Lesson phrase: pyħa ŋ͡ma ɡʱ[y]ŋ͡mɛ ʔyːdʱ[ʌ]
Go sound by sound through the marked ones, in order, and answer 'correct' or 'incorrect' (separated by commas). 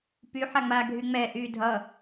correct, correct